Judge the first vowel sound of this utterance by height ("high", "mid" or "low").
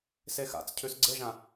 mid